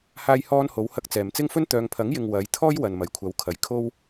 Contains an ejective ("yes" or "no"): no